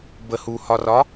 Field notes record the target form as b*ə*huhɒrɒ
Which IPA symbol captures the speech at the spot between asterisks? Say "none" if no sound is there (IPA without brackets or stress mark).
ə